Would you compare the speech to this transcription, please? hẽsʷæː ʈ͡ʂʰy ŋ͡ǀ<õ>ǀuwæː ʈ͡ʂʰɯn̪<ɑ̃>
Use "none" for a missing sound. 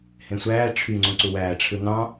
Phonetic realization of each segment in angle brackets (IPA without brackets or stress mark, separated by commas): õ, ɑ̃